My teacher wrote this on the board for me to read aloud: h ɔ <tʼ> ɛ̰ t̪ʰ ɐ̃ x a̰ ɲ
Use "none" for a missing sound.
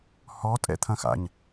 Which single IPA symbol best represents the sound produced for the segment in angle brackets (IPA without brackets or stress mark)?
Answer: tʼ